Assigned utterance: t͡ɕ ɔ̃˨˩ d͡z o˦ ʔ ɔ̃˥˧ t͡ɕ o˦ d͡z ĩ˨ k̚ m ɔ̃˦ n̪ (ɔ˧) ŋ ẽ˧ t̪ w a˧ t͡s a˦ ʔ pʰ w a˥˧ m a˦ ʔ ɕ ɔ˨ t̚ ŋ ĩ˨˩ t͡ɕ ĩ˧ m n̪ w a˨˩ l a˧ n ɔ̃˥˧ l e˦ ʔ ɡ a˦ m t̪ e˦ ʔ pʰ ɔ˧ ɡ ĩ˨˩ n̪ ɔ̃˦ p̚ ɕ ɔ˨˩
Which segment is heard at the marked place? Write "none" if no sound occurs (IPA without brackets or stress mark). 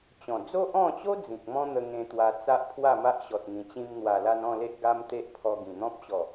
ə˧